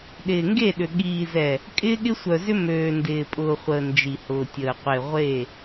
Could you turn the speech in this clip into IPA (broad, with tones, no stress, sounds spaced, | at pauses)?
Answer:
ɗ ɪː˨ ŋ ɡ e˦˨ ɗ ʏ˨ ɠ iː˨ z ɛ˨ | kʼ ɪː˦ ɠ ɪ˦ sʷ œ˨ z ʏ˦ m øː˨ n d ɪː˨ pʼ ʊː˨ χʷ əː˨ n d͡ʒ i˨ h ʊː˨ tʲ əː˨ qʷ e˨ ʁʷ e˦˨